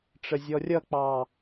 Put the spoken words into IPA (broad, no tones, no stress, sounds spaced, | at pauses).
ʈ͡ʂ ə zʲ ɔ rʲ ʌ k͡p ɑ